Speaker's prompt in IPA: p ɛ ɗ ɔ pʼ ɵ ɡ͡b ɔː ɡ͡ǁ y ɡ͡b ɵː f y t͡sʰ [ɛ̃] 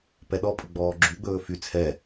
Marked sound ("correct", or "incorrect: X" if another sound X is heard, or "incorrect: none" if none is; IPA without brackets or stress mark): incorrect: ɛ